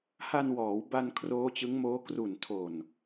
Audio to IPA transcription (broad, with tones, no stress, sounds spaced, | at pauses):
h a˧ n w ɔː˩˦ w b a˧ n kʰ r oː˦˥ t͡ɕ ɯ˦˥ ŋ m oː˦˥ k r u˨˩ n tʰ o˨˩ n